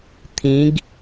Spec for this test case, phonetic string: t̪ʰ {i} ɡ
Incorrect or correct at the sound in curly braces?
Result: incorrect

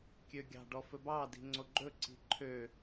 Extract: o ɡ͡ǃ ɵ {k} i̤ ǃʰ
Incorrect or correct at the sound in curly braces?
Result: incorrect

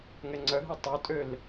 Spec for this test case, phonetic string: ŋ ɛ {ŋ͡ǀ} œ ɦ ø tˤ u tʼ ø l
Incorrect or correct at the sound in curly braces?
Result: correct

